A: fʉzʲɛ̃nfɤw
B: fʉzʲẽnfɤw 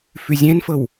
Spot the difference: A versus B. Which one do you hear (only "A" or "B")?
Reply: A